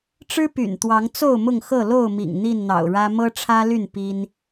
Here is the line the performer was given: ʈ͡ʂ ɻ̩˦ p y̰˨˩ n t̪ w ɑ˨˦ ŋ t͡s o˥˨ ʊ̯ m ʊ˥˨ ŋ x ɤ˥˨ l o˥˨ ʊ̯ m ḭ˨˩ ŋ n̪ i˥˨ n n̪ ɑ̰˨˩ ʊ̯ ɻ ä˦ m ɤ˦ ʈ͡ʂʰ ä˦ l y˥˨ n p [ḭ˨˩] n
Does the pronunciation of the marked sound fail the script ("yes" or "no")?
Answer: yes